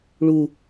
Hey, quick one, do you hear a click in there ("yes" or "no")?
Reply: no